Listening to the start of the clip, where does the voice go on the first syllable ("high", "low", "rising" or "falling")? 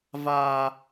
high